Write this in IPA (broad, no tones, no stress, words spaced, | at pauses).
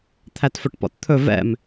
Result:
t̪ʰætfɵʈpɔ̰tt̪ʰɵ vɛ̰m